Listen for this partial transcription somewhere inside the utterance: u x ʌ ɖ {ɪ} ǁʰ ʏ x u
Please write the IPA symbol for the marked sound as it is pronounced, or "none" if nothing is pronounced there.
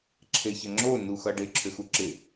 ɪ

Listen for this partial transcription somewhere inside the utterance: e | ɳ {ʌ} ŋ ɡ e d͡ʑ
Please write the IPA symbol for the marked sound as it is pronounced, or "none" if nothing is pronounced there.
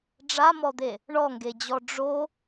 ɔ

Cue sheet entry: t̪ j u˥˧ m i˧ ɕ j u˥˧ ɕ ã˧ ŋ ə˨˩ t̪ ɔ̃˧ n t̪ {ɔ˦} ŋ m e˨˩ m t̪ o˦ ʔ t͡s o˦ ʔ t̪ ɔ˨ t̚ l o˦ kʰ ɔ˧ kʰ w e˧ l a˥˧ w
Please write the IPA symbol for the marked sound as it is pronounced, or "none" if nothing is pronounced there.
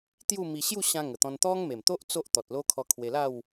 ɔ˦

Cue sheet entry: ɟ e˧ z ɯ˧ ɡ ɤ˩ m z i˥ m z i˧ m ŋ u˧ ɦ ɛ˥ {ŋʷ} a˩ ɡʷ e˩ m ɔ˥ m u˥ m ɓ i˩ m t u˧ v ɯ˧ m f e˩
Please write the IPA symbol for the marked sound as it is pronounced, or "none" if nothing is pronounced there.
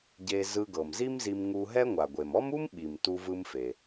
ŋʷ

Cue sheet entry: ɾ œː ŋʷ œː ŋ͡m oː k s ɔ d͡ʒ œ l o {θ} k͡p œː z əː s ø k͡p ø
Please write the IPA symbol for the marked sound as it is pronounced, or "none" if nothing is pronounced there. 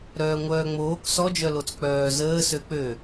t͡s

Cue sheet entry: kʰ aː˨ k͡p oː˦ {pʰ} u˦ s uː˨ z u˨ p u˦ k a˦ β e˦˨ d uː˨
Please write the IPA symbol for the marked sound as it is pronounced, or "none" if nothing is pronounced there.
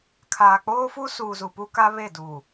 f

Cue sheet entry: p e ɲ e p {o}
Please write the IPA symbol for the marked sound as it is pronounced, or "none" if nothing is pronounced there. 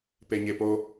o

